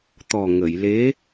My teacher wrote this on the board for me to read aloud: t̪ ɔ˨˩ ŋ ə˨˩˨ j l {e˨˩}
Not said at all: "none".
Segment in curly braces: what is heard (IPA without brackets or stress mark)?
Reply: e˧˥